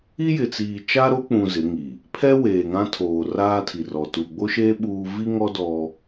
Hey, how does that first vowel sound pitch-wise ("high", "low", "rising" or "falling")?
high